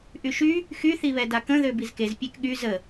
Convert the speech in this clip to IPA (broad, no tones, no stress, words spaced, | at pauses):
ʔyʃy | xyθiβɛ dakə̃ ðøbizkez pʲekɠy zə